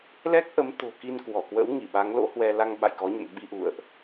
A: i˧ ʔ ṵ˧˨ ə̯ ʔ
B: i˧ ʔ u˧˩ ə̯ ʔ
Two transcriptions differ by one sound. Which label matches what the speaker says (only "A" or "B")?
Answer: A